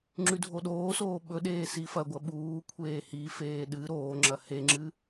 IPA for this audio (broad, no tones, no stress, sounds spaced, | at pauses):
ŋ͡ǁ ʉ dʱ o ɗ oː s oː ɓ ɵ ɗ eː s i f ɐ ɡʷ ɐ ɓ uː kʷʰ eː h i f eː ɗ ɨ ɾ oː ŋ͡ǁ ɐ h e ŋ͡ǁ ɨ